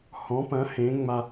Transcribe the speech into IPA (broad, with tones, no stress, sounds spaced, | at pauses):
h ɔ̃˩˥ p ɐ̃˩˥ h ẽ˩˥ ŋ͡m a˧